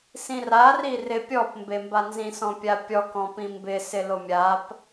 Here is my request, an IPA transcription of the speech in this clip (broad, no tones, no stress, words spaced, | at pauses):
sĩrari rɪ pʲɔpmbe mbanzĩsɔ̃pʲa pʲɔkɔ̃ pĩmbɪsɪ lomʲap